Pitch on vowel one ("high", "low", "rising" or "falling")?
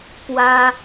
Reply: high